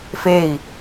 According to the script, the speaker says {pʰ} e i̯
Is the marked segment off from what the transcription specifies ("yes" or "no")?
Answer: yes